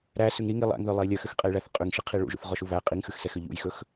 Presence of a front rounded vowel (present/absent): present